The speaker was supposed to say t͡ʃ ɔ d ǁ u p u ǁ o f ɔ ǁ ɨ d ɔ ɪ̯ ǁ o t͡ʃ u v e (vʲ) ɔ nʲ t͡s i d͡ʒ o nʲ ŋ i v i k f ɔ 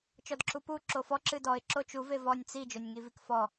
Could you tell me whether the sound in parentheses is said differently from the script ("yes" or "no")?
yes